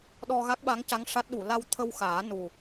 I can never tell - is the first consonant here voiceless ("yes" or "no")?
no